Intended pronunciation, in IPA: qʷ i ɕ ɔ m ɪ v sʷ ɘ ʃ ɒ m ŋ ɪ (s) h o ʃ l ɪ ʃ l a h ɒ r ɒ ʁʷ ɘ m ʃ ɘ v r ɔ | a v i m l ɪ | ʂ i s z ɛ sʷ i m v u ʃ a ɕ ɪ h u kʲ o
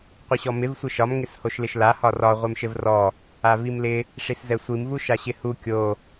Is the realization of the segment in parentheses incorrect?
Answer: no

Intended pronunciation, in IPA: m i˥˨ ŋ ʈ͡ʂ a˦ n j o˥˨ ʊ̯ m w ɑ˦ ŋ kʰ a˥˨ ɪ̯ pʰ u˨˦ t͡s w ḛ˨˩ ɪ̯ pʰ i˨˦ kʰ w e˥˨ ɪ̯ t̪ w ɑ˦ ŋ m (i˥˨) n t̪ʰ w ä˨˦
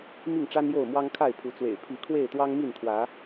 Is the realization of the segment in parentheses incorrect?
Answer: no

